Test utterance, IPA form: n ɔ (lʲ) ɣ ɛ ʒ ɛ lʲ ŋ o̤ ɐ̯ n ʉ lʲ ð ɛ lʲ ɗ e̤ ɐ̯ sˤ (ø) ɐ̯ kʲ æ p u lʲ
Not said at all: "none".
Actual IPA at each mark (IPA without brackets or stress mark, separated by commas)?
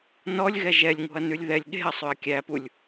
lʲ, ø